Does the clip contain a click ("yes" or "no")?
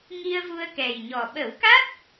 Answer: no